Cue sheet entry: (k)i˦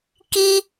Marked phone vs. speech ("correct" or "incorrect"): correct